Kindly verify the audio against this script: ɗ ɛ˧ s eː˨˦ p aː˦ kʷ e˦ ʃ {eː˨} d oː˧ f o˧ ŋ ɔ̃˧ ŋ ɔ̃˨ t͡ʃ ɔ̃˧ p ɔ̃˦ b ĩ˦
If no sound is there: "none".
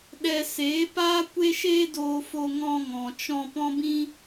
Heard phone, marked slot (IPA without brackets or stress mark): eː˦